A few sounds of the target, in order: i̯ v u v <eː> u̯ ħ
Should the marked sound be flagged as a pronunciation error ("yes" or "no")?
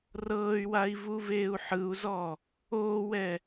no